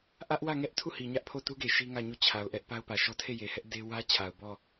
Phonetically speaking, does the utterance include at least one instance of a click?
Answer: no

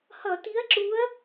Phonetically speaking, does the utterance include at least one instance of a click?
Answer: yes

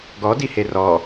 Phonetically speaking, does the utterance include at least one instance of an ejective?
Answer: no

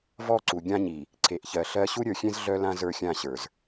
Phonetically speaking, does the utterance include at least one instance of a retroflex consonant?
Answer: no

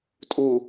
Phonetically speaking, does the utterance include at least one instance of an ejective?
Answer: yes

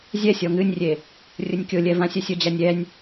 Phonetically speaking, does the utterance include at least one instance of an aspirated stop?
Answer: no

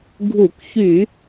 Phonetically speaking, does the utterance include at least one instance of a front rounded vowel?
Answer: yes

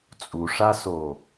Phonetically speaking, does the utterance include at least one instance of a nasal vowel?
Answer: no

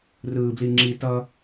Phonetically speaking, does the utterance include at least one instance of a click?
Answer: yes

